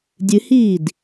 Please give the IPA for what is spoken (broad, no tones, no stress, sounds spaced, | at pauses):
dʲ ɨ h iː d